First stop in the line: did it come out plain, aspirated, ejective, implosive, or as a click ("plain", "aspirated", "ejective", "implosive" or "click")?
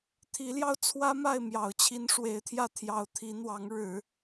aspirated